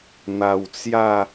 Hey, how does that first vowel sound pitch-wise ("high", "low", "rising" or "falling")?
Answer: low